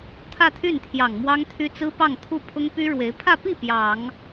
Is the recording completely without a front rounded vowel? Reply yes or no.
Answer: no